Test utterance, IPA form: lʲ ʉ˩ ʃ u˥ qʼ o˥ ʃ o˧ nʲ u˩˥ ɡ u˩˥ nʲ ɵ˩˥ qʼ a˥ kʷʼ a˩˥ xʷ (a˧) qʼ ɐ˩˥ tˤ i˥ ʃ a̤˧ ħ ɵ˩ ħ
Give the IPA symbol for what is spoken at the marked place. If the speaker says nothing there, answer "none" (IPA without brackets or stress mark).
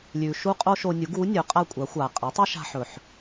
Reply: a˩